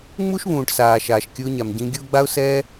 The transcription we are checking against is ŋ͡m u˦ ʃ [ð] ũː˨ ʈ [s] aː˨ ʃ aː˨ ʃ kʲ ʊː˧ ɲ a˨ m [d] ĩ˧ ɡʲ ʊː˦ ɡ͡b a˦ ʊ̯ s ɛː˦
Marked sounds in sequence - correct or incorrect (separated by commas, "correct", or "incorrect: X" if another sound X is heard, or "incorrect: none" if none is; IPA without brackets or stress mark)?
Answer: incorrect: β, correct, incorrect: ɟ